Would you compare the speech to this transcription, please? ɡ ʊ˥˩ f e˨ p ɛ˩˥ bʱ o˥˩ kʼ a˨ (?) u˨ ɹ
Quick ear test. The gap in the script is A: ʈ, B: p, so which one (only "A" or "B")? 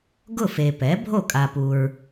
B